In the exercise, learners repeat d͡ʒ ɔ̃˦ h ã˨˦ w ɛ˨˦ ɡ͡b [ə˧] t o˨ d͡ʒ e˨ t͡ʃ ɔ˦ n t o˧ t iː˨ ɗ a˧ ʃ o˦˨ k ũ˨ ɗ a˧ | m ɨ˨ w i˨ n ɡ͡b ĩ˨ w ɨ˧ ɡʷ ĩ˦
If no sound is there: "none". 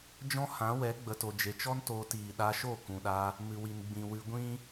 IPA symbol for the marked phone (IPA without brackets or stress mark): ə˨